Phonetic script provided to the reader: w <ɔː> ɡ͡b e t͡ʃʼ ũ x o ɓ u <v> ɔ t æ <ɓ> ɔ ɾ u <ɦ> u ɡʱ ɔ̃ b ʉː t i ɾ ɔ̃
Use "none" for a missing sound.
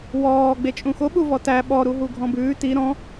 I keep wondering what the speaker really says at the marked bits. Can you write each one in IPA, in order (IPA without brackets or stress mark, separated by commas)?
ɔː, v, ɓ, ɦ